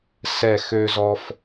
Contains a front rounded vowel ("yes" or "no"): yes